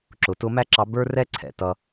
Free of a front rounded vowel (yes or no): yes